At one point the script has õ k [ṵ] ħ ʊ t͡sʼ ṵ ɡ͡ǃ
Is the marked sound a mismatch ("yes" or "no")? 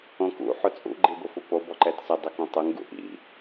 no